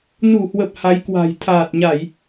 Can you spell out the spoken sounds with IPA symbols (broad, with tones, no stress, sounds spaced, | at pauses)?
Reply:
n u˧˩ h w ə˨˩ p̚ h a˨˦ j k w a̤˨˩ j t̪ʰ aː˨˩ t̚ ɲ a˧˩˨ j